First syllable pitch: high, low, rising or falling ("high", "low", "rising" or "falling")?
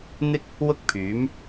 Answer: high